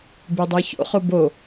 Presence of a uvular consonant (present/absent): present